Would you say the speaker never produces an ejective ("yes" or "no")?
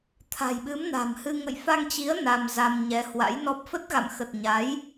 yes